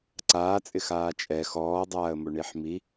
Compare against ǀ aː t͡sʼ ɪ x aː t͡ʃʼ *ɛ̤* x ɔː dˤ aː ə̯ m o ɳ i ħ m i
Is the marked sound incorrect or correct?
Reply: incorrect